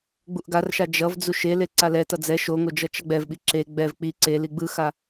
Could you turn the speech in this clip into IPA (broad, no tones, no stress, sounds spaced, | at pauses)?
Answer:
ɡ͡b u ʔ ɡ a r ʃ a d͡ʒ ʌ v d͡z u ʃ e l e ǀ a l ɛ t ʌ d͡z ɛ ʃ o ŋ o d͡ʒ ʌ t͡ʃ ʌ ɡ͡b ɛ v ɓ i ǁ e ɡ͡b ɛ v k͡p i ǀ e l i ɡ͡b ɯ x a